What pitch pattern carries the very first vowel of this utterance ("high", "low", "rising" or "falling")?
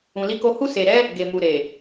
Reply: low